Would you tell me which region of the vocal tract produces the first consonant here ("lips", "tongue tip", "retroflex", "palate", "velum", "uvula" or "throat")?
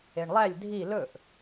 retroflex